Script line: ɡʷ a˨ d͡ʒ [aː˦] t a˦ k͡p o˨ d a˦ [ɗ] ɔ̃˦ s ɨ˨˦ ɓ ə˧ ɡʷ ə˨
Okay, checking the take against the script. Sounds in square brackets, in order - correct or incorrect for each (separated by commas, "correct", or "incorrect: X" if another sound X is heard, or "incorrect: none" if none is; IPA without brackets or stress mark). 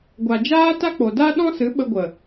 correct, correct